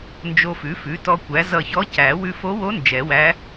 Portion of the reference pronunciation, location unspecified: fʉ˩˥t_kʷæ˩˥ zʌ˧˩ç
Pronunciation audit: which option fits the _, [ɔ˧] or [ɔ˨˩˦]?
ɔ˧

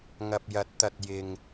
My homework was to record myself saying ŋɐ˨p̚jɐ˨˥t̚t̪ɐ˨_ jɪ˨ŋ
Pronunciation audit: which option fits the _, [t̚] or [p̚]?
t̚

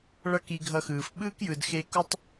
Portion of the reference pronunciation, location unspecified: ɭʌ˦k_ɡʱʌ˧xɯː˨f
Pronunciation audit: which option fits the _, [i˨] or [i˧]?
i˧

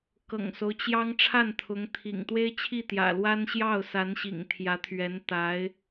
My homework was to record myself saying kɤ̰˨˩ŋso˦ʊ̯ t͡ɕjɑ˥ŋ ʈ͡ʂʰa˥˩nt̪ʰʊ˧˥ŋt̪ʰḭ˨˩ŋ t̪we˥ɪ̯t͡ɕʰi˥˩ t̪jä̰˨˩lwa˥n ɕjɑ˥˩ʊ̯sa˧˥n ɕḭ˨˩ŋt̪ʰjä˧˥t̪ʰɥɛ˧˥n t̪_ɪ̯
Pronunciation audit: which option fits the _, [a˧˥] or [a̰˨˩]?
a˧˥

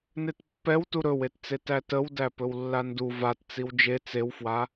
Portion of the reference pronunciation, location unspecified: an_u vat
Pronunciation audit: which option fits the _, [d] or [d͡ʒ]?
d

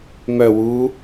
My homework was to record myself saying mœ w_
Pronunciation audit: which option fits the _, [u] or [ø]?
u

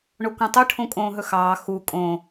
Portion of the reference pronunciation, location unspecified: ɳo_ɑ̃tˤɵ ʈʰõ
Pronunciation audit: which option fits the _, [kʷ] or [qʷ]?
kʷ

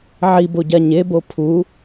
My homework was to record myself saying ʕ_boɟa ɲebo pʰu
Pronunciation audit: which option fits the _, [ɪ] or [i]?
i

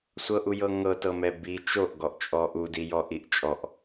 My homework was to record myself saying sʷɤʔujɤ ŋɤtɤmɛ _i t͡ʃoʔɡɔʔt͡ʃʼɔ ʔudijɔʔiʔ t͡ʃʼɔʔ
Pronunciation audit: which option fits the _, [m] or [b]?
b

